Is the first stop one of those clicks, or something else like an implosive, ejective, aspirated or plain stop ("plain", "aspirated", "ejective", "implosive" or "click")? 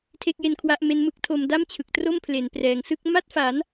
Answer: aspirated